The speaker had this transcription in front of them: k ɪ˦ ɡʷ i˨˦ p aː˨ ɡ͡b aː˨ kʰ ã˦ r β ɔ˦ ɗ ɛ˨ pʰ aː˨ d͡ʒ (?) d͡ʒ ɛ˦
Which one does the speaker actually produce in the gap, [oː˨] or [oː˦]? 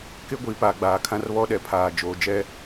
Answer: oː˨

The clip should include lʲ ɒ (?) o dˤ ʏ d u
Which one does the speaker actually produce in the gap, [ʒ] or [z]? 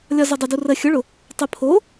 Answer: z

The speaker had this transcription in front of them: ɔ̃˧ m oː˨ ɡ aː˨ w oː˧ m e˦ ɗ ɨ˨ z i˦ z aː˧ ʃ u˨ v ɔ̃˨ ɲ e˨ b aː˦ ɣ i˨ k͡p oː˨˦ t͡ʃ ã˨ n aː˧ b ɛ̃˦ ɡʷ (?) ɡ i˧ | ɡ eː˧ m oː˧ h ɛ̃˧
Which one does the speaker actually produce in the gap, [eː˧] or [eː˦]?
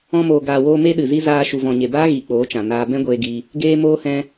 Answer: eː˧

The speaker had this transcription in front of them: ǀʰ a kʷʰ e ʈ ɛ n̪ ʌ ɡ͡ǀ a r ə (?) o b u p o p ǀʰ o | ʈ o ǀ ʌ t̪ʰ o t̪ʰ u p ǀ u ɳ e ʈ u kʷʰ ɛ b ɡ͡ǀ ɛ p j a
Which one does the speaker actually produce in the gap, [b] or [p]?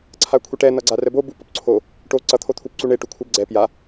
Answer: b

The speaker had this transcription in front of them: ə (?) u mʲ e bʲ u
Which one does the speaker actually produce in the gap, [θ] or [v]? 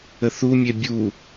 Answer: θ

